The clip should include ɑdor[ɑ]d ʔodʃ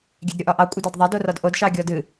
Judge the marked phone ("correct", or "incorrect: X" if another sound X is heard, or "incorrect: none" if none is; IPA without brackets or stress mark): incorrect: ɒ